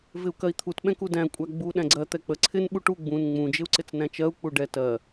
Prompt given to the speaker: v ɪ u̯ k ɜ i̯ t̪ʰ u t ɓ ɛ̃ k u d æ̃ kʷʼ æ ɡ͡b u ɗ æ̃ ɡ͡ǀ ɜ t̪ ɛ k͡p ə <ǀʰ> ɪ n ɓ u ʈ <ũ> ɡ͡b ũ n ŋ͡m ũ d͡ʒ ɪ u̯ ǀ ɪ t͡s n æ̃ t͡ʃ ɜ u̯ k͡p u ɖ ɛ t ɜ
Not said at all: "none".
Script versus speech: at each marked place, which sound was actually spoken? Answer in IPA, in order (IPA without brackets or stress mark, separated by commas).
ǀʰ, u